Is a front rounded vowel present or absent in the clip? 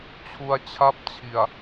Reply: absent